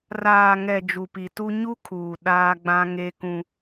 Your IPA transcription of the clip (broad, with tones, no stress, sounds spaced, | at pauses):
r aː˨ ŋ ɛ˨ d͡ʒ u˨ p i˨ t u˦ ɲ u˦ kʰ uː˨ ɗ aː˦ ɡ͡b ã˦ ŋ e˦ k ũ˦